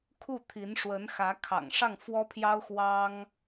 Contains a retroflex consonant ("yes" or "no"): yes